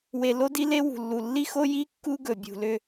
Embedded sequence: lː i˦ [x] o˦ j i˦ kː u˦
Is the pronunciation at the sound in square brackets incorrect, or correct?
correct